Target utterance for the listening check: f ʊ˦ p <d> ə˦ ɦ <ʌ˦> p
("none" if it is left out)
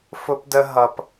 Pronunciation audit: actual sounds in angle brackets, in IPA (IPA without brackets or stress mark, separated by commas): d, ʌ˦